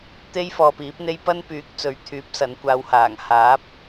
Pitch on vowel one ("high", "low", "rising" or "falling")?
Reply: high